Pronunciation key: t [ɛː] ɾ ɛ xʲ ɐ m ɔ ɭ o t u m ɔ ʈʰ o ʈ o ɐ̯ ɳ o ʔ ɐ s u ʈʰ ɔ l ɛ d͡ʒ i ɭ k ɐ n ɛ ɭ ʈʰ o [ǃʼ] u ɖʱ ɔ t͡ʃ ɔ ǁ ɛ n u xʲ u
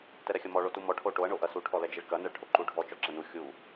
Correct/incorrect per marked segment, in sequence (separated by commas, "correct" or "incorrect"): incorrect, incorrect